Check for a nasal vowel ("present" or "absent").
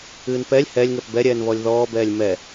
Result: absent